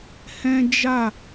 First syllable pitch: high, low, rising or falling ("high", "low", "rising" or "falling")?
high